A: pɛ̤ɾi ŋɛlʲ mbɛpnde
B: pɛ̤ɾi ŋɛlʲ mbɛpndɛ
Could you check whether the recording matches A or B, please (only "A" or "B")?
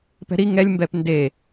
A